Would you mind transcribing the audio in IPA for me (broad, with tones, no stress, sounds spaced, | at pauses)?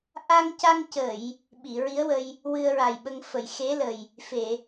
ʔ a˧ ŋ c a˧ ŋ c ə˨˩˨ j | ɓ i˨˩˨ ɹ i˧˥ ə̯ w ə˧ j | w ɨ˧ ə̯ ɹ a˨˩ j ɓ ə˧ ŋ f ə˨˩˨ j x e˧˥ l ə˨˩ j | f e˨˩˨